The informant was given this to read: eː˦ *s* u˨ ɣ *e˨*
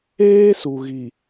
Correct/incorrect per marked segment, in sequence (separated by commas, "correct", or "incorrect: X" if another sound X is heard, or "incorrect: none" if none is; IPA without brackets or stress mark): correct, incorrect: i˨